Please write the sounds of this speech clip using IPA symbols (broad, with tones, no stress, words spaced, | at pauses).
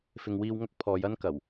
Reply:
fɪ˨ŋwiː˧w ŋɐ˥k̚pʰɔː˨˧j ɐ˥nkɐ˨˩w